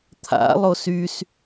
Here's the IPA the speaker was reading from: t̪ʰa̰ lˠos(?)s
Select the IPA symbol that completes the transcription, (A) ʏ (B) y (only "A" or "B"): B